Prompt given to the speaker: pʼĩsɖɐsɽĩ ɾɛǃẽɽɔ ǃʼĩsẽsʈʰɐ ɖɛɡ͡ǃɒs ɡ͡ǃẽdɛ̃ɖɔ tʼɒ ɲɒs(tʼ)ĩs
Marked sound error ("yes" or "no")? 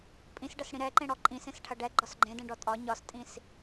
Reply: no